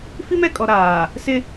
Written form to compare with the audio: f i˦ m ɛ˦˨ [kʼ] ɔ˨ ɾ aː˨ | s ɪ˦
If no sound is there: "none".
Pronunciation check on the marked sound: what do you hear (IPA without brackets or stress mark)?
kʼ